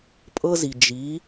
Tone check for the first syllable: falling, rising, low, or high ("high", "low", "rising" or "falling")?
high